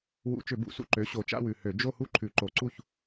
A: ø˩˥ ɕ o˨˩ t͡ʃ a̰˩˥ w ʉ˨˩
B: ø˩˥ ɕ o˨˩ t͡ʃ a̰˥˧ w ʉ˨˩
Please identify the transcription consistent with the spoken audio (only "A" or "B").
B